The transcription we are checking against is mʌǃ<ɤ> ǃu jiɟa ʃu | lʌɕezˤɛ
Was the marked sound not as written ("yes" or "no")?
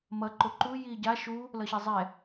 yes